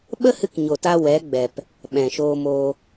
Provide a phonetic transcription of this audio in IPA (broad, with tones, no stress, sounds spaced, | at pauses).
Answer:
ɓ ə˦ h ɨ˧ k ɲ o˨ t a˧ w ɛ˨˦ ɡ͡b ɛ˨ p | ɓ ɛ̃˨ ʃ oː˧ m oː˧